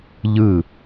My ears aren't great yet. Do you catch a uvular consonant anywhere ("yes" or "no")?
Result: no